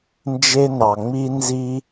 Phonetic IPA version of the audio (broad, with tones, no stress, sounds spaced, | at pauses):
n d͡ʒ e˧ n ɑ˨ ŋ͡m i˧ n z i˦